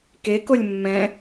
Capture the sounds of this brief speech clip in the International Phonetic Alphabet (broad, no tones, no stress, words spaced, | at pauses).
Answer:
kekolʲ mːɛ̃